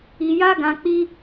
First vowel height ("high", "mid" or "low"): high